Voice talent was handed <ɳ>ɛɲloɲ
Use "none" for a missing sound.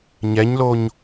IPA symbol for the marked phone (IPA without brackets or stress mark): ɲ